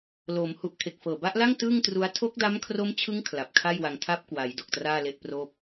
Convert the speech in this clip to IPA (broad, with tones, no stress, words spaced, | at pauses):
loː˩˦mhu˨˩ʔ kʰe˨˩k̚fɤː˨˩ba˦˥ʔla˥˩ŋ tɯː˥˩ŋtru˦˥a̯ tʰo˦˥k̚da˦˥mkʰro˦˥mt͡ɕʰɯ˦˥ŋ kʰla˨˩p̚kʰa˥˩jwa˧ŋ tʰa˦˥p̚kwa˩˦j do˨˩k̚traː˥˩le˥˩ʔproː˥˩p̚